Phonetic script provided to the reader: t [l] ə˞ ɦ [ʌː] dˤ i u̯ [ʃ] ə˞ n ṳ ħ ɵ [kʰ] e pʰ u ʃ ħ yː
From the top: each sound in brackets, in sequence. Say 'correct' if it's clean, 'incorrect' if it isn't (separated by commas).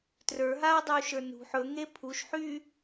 incorrect, incorrect, correct, incorrect